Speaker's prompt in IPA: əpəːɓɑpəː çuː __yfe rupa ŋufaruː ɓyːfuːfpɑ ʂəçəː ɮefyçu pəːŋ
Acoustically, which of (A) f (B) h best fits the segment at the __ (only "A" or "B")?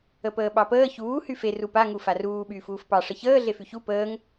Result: B